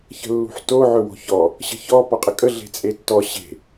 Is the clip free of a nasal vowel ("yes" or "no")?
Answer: yes